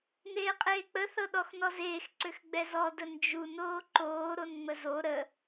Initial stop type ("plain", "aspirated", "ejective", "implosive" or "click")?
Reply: ejective